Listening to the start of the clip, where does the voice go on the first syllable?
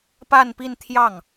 falling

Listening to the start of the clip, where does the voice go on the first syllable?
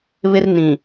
high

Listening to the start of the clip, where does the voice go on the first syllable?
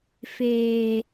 low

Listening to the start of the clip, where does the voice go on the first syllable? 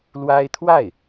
high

